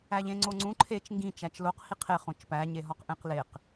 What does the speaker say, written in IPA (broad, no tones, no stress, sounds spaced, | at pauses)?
æ ʎ ẽ ŋ͡ǀ o ŋ͡ǀ ũ ǃʰ e t͡ʃ ŋ ɡ ĩ t͡ʃ æ t͡ʃ l o q h i qʰ e χ õ t͡ʃ p æ ɲ e ɦ ɒ q ʔ ẽ q l e q